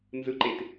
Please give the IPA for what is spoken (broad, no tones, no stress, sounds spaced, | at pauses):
n z ɯ ǃ e t